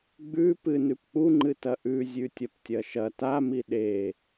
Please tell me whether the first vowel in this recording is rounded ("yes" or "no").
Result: yes